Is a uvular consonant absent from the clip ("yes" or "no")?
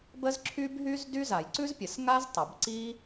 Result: yes